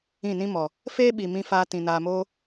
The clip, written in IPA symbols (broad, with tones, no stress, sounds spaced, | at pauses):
ĩ˦˨ n ĩ˦ m ɔ˨ | f eː˦ ɓ i˨ m ĩ˧ f aː˧ t ĩ˨ n aː˧ m oː˦